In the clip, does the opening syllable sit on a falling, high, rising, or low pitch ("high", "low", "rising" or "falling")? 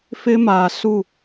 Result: high